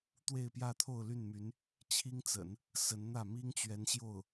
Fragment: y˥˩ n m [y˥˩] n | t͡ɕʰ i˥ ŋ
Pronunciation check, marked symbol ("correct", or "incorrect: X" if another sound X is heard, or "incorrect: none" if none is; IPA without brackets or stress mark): incorrect: y˧˥